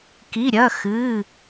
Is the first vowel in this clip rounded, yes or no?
no